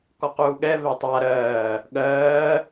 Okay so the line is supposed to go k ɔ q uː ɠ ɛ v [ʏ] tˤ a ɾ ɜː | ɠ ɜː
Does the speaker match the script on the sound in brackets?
no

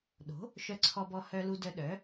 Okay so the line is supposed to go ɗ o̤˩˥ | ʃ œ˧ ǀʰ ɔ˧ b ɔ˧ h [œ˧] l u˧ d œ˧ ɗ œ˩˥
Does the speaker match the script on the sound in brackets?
yes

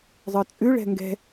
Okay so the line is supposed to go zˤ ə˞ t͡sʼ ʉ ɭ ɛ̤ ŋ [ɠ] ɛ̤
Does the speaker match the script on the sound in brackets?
no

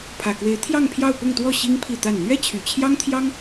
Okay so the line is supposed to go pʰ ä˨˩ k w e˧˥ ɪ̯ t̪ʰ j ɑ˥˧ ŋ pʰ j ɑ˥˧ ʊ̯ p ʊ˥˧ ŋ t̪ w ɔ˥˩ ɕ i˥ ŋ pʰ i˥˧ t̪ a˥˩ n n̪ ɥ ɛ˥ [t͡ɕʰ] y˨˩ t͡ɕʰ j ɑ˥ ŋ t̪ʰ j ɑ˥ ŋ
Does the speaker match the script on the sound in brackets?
yes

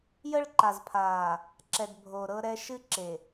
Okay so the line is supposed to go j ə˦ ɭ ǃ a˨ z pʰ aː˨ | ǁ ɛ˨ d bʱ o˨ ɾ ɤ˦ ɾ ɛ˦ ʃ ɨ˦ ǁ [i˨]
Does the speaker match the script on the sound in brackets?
no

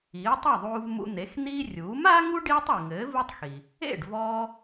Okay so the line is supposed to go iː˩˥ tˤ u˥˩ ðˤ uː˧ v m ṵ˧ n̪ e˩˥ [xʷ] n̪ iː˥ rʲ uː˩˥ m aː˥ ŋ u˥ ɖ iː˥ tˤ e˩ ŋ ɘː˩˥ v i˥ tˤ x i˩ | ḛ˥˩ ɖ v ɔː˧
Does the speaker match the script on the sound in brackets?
no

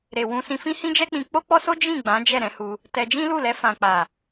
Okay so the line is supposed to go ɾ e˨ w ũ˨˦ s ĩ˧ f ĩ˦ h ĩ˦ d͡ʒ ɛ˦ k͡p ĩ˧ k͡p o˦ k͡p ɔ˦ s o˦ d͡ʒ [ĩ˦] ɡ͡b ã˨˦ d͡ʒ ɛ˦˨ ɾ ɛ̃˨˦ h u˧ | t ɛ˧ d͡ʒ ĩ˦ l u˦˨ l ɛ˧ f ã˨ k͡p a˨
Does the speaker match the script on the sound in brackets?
no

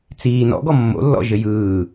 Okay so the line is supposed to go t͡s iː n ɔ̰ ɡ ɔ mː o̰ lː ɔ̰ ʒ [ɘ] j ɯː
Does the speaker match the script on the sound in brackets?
yes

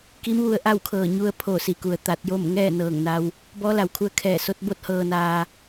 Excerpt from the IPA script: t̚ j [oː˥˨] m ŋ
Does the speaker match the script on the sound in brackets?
yes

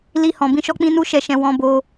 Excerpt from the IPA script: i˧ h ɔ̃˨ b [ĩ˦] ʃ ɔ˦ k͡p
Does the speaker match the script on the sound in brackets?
no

